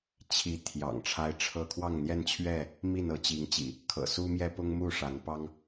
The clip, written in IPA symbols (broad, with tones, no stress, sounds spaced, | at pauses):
t͡ɕʰ i˨˦ t̪ʰ j ɑ̰˨˩ ŋ ʈ͡ʂʰ a˦ ɪ̯ ʈ͡ʂʰ ɤ˥˨ kʰ w ɑ˥˨ ŋ n̪ j ɛ˥˨ n t͡ɕʰ ɥ ɛ˥˨ | m i˥˨ n ɤ˨˦ t͡ɕ i˨˦ ŋ t͡ɕ ḭ˨˩ | kʰ ɤ̰˨˩ s u˦ m j ɛ˦ p ʊ˦ ŋ m u˥˨ ʂ a˨˦ n p ɑ˦ ŋ